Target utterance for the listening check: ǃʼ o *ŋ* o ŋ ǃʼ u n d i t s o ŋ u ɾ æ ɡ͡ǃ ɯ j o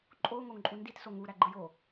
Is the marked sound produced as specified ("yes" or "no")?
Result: yes